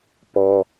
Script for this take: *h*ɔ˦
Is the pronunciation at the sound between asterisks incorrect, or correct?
incorrect